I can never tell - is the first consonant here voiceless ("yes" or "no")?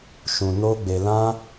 yes